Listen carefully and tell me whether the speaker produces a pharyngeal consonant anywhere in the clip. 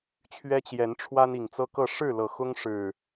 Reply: no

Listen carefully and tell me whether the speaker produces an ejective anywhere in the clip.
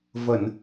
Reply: no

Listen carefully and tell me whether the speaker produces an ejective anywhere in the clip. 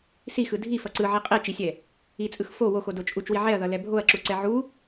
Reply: yes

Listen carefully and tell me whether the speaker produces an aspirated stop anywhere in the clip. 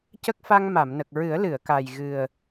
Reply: no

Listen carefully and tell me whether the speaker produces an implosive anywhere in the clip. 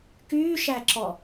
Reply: no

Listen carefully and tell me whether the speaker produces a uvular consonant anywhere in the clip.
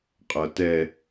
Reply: yes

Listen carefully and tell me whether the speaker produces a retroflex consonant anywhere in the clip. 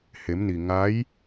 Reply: no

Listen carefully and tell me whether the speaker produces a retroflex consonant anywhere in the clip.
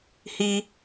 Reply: no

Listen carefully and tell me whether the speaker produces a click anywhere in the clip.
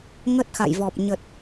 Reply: no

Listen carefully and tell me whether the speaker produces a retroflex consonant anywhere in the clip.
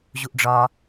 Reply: yes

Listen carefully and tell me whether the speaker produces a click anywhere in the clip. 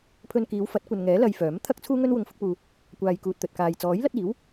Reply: no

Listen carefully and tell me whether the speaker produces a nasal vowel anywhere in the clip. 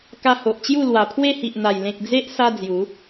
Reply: yes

